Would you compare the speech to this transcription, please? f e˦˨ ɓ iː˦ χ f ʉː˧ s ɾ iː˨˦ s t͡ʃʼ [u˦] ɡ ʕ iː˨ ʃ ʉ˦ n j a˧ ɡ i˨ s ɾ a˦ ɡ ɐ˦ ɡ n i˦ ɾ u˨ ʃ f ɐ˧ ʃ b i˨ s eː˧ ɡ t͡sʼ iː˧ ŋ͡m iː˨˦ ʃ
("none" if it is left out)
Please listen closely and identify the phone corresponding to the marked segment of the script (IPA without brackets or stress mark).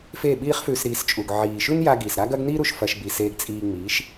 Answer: u˨